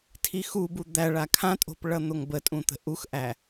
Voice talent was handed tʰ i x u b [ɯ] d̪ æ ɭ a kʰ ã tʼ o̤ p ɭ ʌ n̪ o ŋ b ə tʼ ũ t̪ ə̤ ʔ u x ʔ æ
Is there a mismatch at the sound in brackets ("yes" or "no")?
yes